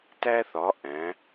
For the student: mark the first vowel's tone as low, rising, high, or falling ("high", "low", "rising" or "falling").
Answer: high